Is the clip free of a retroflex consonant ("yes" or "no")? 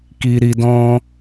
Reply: yes